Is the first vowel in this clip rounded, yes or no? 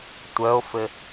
yes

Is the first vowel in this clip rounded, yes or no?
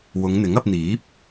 yes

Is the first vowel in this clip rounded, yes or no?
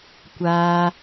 no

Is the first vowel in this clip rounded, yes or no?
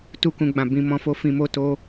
yes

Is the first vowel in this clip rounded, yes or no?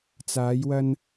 no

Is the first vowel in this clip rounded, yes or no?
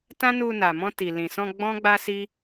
no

